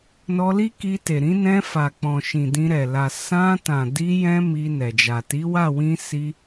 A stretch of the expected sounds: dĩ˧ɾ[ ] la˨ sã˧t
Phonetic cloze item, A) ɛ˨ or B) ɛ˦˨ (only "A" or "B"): A